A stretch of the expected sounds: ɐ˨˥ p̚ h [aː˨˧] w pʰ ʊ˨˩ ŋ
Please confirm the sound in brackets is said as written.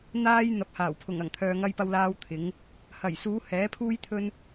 no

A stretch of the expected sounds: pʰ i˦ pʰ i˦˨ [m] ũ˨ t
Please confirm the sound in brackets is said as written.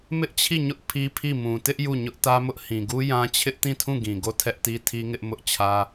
yes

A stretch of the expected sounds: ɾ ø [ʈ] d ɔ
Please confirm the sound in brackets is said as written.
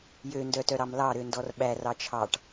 no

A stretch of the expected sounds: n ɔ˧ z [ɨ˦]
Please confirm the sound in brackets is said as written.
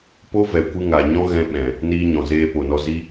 no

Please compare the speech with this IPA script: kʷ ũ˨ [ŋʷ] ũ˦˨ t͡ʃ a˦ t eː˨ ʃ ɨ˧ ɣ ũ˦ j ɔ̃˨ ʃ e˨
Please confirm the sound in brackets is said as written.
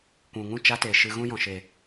no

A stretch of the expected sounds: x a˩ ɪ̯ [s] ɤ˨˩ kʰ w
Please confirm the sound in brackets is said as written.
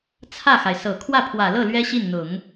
yes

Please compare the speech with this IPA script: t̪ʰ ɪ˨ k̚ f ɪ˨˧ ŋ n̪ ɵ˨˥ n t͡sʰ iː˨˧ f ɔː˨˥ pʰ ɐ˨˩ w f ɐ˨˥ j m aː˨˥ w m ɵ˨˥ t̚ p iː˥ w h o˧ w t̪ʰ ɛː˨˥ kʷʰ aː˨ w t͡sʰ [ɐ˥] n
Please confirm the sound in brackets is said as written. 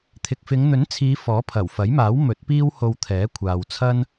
yes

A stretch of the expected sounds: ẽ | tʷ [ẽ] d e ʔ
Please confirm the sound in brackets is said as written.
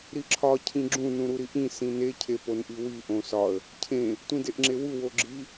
no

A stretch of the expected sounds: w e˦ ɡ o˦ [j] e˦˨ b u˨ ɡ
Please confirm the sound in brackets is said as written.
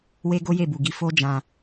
yes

